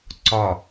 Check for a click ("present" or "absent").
present